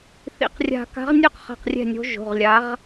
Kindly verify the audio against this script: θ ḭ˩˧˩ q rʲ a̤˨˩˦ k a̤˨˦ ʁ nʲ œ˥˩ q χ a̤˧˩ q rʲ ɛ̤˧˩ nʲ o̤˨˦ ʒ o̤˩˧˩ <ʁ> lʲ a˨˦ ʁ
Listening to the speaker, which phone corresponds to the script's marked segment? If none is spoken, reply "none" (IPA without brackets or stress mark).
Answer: ʁ